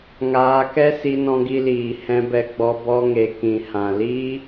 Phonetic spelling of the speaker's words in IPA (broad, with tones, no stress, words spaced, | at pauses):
ŋaː˧kɛ˦ si˧nɔ̃˧ɡi˧liː˨ hɛ̃˧bɛ˧ɡ͡bɔ˧ bɔ˧ŋe˨ kĩ˨hã˨li˦